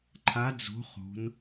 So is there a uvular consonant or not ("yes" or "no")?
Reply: yes